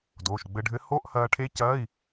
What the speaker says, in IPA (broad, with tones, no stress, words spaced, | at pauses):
doː˩˧˩ʃɡ͡bɘ˧ɖʱɘ˧˥ ho˧˥˧ʔhɐː˧ʈʰe˧˥ cɐː˧˥˧i̯